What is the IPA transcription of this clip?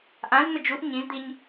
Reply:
ʔ ã z n̪ ə d͡ʒ u ʔ ɲ ĩ z d̪ i ɲ

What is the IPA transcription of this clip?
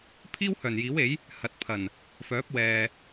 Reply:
pʰ iː˥ w h œː˨˩ n j iː˨˥ w e˨˥ j | h ɐ˨˥ t̚ pʰ ɐ˨˩ n | f œː˨˥ p̚ w ɛː˨

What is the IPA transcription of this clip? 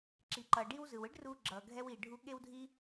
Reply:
ǁ i˩ ǃ ʌ˩ ɖ i˧ w z ɯ˩ w ɯ˥ ɖ r uː˧ ɡ͡ǁ ʌː˩ ɡʱ ɛ˧ w i˩ ɖʱ u˧ ɠ e˥ w dʱ i˥

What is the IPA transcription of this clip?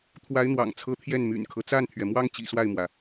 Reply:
t̪ʰ w a˧˥ ɪ̯ n̪ w ɑ̰˨˩ ŋ t͡sʰ ɤ˧˥ t̪ʰ j ɛ˥˩ n m y̰˨˩ n kʰ ɤ˦ t͡s a˥˩ n t̪ʰ ɥ ɛ˩ m w ɑ˥ ŋ t͡ɕ ḭ˨˩ s w a˥˩ ɪ̯ m w ä˩

